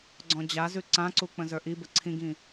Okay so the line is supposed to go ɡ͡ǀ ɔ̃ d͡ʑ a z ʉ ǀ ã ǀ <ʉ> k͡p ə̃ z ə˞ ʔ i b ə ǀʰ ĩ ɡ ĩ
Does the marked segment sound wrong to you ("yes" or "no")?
yes